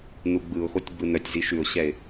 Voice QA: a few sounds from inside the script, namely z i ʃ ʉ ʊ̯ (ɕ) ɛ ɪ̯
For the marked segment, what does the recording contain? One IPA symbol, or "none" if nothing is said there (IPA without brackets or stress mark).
ɕ